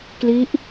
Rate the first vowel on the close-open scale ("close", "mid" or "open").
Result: close